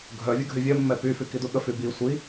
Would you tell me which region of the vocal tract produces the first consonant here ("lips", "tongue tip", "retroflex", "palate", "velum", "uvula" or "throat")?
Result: velum